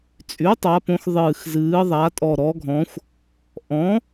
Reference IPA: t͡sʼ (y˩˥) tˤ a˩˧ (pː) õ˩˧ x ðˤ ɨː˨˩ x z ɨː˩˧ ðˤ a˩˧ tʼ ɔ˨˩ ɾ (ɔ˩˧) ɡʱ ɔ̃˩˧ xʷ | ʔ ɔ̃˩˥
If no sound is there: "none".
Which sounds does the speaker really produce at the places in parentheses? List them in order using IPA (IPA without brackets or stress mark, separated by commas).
y˩˥, p, ɔ˩˧